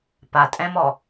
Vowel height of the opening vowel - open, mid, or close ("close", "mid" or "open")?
open